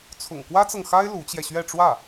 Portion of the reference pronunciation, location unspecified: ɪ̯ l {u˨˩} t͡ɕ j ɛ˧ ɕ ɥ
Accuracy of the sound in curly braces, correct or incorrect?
incorrect